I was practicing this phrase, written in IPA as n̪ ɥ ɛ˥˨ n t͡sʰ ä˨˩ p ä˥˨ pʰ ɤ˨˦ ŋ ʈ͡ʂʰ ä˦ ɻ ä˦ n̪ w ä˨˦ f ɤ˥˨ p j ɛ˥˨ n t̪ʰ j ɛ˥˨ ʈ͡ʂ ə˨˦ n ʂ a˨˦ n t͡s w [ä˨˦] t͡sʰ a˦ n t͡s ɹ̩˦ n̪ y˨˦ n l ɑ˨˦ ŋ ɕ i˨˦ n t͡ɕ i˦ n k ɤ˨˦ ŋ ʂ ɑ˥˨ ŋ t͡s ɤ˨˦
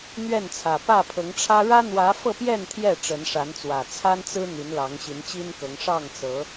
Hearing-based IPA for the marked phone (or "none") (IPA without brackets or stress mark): ä˨˩